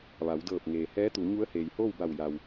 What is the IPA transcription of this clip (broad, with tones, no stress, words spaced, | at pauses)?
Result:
ʋa˩˧wdɤː˧˩p̚ŋeː˩ hɛː˧˥t̪u˩˧ ɲu˧˥ə̯heː˩jhoː˥˨wba˧˩w ja˩w